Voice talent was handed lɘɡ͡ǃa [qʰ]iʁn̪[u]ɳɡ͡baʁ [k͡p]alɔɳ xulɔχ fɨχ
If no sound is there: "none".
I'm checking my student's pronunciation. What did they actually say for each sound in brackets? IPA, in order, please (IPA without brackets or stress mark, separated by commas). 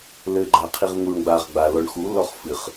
qʰ, u, ɡ͡b